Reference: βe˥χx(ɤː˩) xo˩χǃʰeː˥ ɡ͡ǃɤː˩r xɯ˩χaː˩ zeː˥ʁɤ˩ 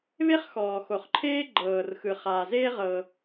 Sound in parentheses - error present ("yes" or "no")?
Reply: yes